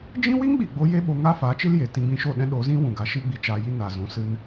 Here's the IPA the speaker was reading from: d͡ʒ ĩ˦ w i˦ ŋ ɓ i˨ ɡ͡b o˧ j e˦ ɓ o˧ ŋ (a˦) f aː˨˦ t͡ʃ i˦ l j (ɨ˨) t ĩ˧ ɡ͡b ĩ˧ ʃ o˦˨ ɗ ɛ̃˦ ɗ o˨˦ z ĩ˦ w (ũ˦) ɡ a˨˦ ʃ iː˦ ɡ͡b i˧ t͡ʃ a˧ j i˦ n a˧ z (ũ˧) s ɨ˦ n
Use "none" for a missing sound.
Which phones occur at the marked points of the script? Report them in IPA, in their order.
a˦, e˨, ũ˨, ũ˧

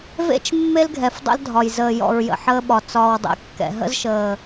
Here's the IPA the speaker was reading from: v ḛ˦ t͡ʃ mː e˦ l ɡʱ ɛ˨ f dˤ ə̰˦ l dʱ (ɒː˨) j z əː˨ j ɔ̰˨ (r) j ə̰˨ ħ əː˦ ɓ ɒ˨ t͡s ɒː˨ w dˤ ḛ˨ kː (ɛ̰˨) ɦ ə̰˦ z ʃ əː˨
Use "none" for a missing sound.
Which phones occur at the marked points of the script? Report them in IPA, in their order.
ɒ˨, ɹ, ɛ̰˨

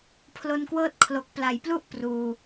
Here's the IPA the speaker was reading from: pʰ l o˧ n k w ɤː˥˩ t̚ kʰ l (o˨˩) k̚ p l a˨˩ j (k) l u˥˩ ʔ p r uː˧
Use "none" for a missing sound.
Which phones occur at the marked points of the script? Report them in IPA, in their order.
o˨˩, p

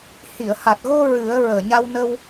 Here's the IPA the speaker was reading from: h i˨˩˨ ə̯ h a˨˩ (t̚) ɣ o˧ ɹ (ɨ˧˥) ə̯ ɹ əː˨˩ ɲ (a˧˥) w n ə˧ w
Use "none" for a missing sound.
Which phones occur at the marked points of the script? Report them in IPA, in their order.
t̚, ɨ˨˩˦, a˧

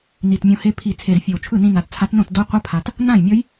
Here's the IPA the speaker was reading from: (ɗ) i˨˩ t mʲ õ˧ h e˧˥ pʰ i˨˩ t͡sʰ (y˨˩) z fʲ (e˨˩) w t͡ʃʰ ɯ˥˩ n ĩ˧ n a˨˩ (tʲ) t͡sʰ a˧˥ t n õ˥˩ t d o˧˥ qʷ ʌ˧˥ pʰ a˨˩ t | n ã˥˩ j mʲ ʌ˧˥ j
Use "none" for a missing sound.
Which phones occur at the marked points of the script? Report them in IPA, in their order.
n, e˨˩, e˨˩, t

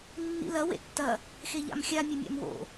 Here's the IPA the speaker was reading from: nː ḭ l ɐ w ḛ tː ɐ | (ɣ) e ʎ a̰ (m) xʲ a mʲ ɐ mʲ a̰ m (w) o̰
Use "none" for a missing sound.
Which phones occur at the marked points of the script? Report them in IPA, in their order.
x, m, w

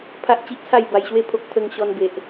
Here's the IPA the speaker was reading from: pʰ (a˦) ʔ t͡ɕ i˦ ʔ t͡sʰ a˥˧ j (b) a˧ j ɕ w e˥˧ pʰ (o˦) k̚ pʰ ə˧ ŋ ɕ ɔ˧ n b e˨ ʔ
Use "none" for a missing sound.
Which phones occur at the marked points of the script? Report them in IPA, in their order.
a˦, b, o˦

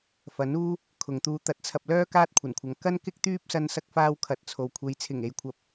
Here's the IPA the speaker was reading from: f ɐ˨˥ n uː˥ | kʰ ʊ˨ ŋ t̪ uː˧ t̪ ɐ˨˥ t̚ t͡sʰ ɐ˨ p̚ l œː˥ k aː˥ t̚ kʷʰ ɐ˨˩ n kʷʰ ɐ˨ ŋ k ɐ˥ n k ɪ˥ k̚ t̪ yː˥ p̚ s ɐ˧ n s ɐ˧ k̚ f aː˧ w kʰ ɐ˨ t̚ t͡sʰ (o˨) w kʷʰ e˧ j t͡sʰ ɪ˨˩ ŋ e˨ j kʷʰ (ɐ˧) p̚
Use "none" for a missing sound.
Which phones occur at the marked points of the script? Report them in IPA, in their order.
o˨, ɐ˨˥

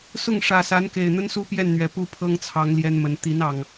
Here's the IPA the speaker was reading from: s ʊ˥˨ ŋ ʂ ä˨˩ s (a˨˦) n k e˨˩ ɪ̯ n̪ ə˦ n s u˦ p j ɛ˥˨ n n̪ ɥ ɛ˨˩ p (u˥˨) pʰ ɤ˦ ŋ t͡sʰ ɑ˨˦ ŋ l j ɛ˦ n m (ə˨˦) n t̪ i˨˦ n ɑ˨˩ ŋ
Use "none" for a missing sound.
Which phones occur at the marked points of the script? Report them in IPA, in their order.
a˨˦, u˥˨, ə˨˦

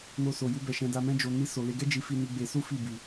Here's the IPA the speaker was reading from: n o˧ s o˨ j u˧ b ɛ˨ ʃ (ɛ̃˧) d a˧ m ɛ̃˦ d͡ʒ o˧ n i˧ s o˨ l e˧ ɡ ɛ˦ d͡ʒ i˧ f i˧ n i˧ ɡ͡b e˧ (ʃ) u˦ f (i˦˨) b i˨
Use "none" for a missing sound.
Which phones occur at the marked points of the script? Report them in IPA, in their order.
ɛ̃˧, s, i˦˨

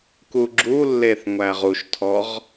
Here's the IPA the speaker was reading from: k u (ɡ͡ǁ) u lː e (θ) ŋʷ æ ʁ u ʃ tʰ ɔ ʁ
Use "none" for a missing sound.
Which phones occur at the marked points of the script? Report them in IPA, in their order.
ɡ͡ǁ, θ

